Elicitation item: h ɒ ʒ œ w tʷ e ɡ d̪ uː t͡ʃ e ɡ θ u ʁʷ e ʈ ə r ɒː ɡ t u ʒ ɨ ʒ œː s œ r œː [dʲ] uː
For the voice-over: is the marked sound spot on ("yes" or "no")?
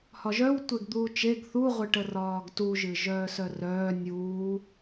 no